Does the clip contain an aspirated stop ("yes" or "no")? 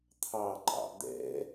yes